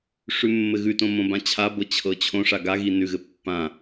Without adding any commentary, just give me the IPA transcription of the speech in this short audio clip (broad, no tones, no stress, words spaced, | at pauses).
ʂʉmːɘɣʉtõ mõbãt͡ɕʰabɤ t͡ɕʰɤt͡ɕʰõʂa ɡaɣi nʉɣɘ pːã